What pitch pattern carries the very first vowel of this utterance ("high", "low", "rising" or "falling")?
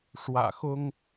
low